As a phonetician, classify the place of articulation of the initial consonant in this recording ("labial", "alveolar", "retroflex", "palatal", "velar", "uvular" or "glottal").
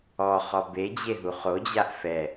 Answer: uvular